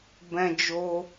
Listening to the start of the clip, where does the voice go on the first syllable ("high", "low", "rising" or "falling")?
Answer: high